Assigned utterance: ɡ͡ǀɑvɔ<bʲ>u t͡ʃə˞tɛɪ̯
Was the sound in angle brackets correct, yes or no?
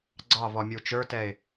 no